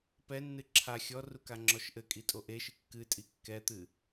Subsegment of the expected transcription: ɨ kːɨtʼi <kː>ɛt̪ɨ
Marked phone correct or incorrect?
correct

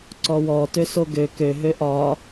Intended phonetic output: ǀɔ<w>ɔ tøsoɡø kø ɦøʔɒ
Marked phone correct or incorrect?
correct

